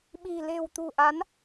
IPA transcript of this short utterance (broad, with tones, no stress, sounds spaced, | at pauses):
ɓ i̤˨˩ l e̤˨˩ w t̪ ṳ˨˩ ʔ a˨˦ n